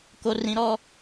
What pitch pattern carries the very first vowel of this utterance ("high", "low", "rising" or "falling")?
high